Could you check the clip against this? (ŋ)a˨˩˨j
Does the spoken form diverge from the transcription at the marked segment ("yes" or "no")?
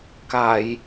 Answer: yes